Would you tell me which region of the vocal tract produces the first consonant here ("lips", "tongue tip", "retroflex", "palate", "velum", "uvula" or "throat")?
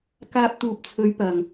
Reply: velum